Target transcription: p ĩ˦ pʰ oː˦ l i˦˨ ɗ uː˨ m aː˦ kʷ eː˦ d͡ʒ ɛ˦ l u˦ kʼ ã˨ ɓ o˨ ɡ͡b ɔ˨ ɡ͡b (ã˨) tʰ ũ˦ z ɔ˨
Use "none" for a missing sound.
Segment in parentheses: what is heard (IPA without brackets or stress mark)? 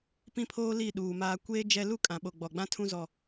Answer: ã˦